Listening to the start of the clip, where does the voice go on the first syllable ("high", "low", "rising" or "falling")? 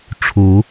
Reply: rising